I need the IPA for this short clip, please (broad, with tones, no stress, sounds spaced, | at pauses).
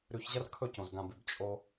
ɾ ʉ˨ ç ʑ ɐ˦ r kʰ ɵ˦˨ c õ˨ z ɡ ã˨ b ʉ˨ b t͡ʃʼ o˦